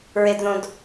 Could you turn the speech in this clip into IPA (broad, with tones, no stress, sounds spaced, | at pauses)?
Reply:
ɹ e˨ d ð õ˨ d